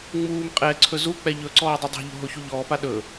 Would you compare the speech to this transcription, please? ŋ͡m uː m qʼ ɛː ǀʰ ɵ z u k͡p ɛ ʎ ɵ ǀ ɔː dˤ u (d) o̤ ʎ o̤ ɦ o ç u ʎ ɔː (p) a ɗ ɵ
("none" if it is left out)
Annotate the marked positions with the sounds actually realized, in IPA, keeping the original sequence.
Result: dˤ, p

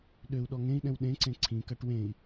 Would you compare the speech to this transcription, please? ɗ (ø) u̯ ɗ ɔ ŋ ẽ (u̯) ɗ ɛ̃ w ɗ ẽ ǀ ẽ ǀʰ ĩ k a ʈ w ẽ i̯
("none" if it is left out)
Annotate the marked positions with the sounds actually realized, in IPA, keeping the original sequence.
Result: ø, i̯

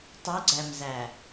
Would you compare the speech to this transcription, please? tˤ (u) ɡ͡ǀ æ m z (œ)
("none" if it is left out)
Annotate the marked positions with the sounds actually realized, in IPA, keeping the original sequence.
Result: u, æ

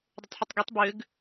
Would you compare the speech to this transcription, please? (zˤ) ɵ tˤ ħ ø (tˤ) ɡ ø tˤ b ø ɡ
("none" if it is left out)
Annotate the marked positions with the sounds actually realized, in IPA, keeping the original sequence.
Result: dˤ, tˤ

